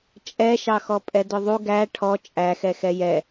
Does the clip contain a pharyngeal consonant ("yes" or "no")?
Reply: no